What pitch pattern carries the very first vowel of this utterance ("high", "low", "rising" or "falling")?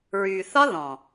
low